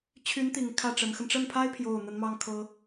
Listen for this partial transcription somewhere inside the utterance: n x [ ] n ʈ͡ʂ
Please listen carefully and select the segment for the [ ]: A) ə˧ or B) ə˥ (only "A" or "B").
A